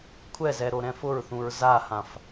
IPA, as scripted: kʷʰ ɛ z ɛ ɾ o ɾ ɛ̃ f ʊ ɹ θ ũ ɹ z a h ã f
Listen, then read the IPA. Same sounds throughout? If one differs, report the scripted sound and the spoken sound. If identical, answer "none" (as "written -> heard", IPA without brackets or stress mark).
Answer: none